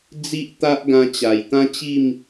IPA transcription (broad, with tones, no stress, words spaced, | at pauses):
d͡zi˦ʔt̪a˦ʔ ɡã˧t͡ɕa˨˩jt̪ã˦t͡ɕi˥˧m